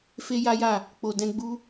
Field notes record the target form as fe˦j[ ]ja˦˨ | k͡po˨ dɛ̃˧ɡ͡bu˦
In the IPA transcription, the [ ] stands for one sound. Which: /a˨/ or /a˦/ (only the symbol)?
a˦